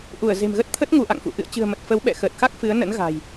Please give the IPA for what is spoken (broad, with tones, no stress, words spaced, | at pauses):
ʔu˧˩ə̯ze̤˨˩mɣə˦˥t̚t̪ʰə˦˥t̚ ŋu˧ʔa̰˧˨ŋfṵ˧˨ ʔɨ̰˧˨ə̯t͡ɕɨ̤˨˩ə̯mə˨˩t̚ fə˨˦wɓɛ̰˧˨xəː˨˩t̚xa˦˥k̚ fɨ˨˦ə̯ nə̰˧˥nɣa̤˨˩j